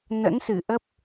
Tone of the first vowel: rising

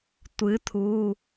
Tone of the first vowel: rising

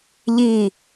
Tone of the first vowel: falling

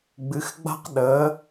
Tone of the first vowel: rising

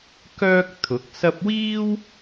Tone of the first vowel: high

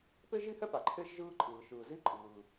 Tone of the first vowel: high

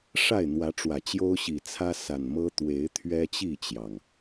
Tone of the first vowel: falling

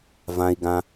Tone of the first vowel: low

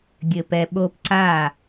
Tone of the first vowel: low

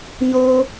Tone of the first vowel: high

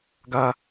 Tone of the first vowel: high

